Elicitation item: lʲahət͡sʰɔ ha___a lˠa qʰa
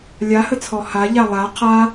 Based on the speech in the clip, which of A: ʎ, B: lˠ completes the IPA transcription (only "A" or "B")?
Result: A